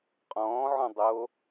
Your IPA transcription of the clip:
qʼ ɔ̃ː ʕ ɔ̃ dˤ o

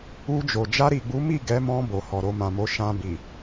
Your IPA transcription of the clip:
u˧ d͡ʒ o˨ d͡ʒ a˧ ɾ i˨ ɡ͡b u˨˦ m i˦˨ ɡ ɛ˨˦ m ɔ̃˧ b o˨ h ɔ˨ ɾ o˧ m ã˨ m o˨˦ ʃ ã˧ b i˨

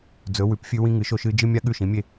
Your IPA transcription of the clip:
d͡z ɵ˨˥ w ʉ˨˥ p fʲ ʉ˥ w ĩ˥ ŋ ɨ˨˥ ʃ o˥ ʃ ɨː˥ d͡ʒ ɨ˥ mʲ a˥ ɠ ʉ˥˨ ʃ ĩ˨˥ mʲ e˥˨

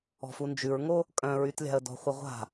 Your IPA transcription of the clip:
ɔ̤ f u n d͡ʒ ʉ ɹ ŋ o | kʼ œ̃ ɹ y t lʲ a̤ ə̯ d ɔ̤ χʷ ə ʁʷ a̤

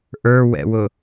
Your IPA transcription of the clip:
ʔ ə˞ w ɛ̰ w ʊ

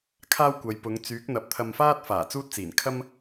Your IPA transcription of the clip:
kʰ aː˥ w kʷ ɐ˨˧ j p ʊ˨˧ ŋ t͡s yː˨˥ k̚ n̪ ɐ˨˥ p̚ t̪ʰ ɐ˧ m f aː˥ t̚ f aː˨˩ t͡s uː˥ t̚ t͡s iː˨˩ n kʰ ɐ˥ m

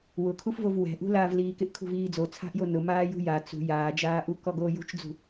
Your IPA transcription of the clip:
w ʊ kʰ u f v o v w ɛ̤ ʔ ṳ l aː v l iː k ɪ ʔ kʰ ṳ v iː d͡z o t͡sʰ a̤ ʔ j o n ʊ m aː j ṳ j a t͡s ṳ j aː d͡ʒ aː ʔ u k ɔ ɡ oː j ṳ t͡ʃ d͡z ṳ

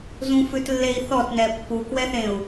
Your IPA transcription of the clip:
z ũ f ʉ t lː e i̯ θ ɔ t n ɛ pː u k w ɛ θ ẽ u̯

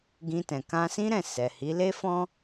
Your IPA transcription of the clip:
ɡ ĩ˧ t ɛ̃˨ k ã˧ s ĩ˦ ɾ ɛ̃˦˨ s ɛ˨ h i˨˦ l e˦ f ɔ̃˦

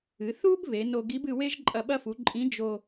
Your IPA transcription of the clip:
ɨ˩˧ θ u˥ b β e˩˧ n o˧ ɡ i˧˥ b ɨ˧ w e˥ ʒ ǃʼ ɐ˧ ɓ ɐ˧ f u˩˧ ǃʼ ĩ˧˥ d͡ʒ o˧

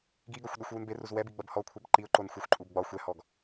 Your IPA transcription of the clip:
ɡ i ɡ ɒ xʷ ɗ o xʷ w u n b e r u z w ɛ b i ɡ͡b ɐ b h ɔ kʷʰ ɛ b ǃ i ʊ̯ ǃ o n xʷ ɛ xʷ ǃʼ u b ɡ͡b ɒ xʷ ɛ h ɔ ɡ

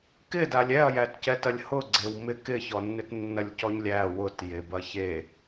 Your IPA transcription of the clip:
k ɪ d a lʲ ɛ ɐ̯ j æ t c ɛ t ɐ lʲ h ʊ ɡ͡ǀ e w m ɪ k ɪ ç ɔ nː ɪ t nː ɐ lʲ c ɔ ɲ lʲ æ w ʊ t j e b ɐ ç e

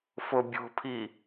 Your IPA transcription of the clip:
f o bʲ o̤ pʰ i

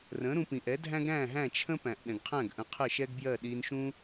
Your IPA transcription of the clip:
r ə̃˩˥ ɾ ũ˧ p ĩ˩ ʔ ɛ˩˥ dʱ æ̃˥ ɡ ɾ æ̃˥˩ ɦ æ̃˥˩ t͡ʃʰ ə̃˥ p æ̃˩ ʔ ɗ ɛ̃˩ ɡ qʰ æ̃˥˩ ɡ ʔ ə̃˩˥ qʰ ə˥˩ ʃ ɛ˥ ɡ b j ɜ˥˩ ɗ i˧ n ʃ ũ˥

